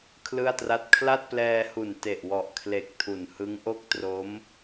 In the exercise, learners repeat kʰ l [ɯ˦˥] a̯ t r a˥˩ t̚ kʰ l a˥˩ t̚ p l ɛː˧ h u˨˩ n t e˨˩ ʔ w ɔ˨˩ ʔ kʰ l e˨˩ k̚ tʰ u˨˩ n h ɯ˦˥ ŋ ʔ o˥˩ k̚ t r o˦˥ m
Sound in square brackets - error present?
yes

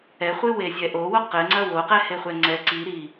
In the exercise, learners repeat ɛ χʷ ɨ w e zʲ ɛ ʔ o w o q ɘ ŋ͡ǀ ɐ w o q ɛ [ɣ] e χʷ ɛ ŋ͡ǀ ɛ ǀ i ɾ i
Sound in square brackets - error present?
yes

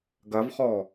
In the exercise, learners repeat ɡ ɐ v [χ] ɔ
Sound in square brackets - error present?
no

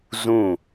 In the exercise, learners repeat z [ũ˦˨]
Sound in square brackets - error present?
no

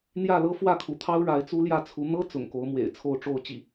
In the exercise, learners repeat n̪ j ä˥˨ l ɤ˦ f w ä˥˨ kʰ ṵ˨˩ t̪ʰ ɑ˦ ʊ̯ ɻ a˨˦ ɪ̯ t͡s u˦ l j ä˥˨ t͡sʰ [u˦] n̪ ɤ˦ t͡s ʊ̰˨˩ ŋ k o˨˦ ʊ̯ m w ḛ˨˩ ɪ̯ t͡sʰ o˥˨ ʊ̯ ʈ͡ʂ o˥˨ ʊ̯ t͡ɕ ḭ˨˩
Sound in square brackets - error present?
yes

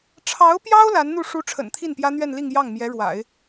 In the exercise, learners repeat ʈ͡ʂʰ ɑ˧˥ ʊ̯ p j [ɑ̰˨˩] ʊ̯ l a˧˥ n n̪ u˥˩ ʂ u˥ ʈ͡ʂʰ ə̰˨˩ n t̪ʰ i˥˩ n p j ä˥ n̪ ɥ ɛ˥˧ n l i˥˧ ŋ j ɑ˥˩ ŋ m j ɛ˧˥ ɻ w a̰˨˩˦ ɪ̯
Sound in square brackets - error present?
yes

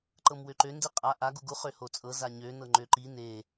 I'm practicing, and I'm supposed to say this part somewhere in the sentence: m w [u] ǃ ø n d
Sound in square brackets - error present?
yes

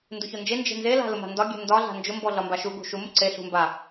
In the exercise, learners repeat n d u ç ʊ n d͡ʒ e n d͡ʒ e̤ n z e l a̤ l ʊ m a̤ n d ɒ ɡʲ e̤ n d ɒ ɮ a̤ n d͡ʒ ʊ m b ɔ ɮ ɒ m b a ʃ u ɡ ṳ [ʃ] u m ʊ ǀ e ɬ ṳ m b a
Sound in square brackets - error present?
no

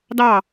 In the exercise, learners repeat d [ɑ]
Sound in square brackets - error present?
no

